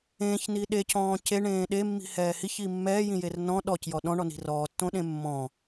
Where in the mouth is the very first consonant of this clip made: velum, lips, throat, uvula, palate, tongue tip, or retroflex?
palate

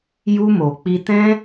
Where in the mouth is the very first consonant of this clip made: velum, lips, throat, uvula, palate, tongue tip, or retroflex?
palate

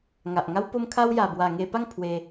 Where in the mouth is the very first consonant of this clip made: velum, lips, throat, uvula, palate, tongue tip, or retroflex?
velum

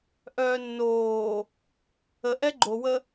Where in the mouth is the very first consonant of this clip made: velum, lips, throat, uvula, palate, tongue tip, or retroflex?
throat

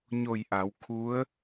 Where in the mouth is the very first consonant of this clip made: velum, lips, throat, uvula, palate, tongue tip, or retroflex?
palate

